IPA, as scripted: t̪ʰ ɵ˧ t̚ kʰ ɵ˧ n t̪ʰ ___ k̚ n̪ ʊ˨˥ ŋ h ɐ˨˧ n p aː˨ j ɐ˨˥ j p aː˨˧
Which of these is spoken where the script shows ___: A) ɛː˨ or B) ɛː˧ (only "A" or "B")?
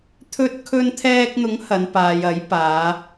B